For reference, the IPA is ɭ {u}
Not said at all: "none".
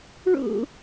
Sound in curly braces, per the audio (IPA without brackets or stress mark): ṵ